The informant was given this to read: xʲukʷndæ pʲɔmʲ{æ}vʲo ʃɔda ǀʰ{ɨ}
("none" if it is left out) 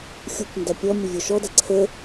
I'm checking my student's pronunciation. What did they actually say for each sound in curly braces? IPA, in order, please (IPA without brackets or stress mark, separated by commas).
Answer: ə, ə